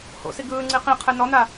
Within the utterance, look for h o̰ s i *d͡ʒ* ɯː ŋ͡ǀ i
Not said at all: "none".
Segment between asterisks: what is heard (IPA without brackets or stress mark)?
ɡ